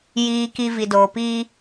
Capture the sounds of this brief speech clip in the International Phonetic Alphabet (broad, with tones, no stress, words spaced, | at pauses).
jiː˨ki˨ vi˨doː˨piː˦